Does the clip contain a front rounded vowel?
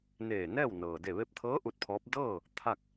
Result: no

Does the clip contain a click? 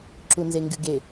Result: yes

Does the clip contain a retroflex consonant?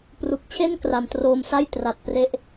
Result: no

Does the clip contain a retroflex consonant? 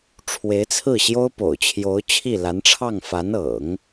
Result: yes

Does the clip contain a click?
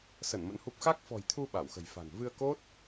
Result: no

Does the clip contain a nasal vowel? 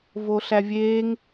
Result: no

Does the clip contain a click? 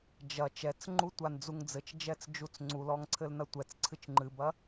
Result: yes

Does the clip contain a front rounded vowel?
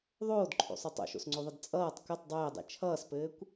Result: no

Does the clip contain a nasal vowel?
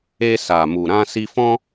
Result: yes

